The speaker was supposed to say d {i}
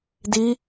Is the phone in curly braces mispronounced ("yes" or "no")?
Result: no